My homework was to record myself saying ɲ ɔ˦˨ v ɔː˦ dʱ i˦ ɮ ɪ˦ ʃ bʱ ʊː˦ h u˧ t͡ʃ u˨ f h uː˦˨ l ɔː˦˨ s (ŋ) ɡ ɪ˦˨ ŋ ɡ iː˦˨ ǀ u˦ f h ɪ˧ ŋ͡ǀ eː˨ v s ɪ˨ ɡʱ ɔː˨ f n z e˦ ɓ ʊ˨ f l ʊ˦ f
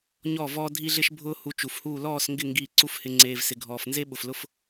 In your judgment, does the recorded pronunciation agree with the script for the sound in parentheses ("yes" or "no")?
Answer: yes